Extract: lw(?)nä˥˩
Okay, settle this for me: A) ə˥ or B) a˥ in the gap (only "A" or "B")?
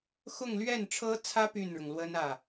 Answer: A